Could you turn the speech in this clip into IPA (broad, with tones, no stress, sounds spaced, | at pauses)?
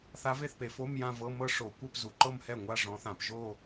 θ a˧˥ v e˥˩ θ p e˩˧ f o˧˥˧ m j ã˥˧ v ɤ˧˥˧ m ɤ˥˧ ʂ o˧˩˧ kʷ ɛ˥˧ p z u˩˧ ǃ ɤ˥˧ m h ɛ˥˩ ŋʷ a˥˧ ʐ ɔ̃˧˥ θ ã˧˩˧ p ʒ o˥˧